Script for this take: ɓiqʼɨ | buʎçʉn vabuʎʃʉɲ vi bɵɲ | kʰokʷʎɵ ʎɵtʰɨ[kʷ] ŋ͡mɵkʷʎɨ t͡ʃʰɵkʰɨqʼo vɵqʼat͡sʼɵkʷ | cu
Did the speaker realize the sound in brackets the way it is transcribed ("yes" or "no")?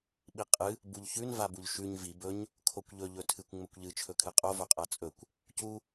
yes